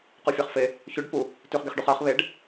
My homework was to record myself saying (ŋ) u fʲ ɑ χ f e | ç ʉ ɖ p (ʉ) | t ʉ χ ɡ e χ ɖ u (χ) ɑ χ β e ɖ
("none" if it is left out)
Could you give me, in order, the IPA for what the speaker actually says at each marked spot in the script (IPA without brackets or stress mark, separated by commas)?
q, u, χ